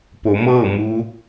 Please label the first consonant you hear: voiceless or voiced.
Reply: voiceless